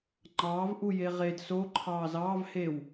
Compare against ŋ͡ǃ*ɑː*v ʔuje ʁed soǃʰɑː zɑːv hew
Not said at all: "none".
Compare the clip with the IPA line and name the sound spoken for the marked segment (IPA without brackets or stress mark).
ɑː